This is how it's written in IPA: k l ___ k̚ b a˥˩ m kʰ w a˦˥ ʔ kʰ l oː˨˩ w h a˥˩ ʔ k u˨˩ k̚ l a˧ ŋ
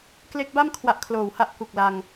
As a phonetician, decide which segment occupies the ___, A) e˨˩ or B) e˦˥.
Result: B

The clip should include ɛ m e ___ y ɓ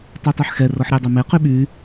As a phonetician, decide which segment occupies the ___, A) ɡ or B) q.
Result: B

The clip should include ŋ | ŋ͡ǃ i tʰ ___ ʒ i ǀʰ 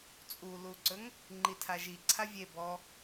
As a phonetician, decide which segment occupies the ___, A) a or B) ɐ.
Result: A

